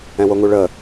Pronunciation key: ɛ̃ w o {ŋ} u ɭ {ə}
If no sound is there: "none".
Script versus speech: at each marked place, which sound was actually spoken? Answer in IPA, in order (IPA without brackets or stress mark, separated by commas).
ŋ, ə